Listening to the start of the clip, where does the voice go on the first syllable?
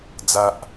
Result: high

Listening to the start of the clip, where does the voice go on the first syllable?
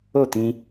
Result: falling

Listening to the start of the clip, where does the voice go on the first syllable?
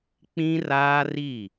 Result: high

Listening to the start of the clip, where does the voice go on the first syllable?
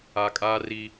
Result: low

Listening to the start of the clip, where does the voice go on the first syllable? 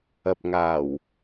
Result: low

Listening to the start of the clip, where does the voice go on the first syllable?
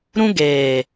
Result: high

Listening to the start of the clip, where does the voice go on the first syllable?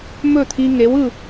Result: falling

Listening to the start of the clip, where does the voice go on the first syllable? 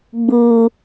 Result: low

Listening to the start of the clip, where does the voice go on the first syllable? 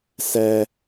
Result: high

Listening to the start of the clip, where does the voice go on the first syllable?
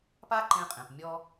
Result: high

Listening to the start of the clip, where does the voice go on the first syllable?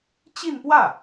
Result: falling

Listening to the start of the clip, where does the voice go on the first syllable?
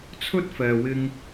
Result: high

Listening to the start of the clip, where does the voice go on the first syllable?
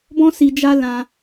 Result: high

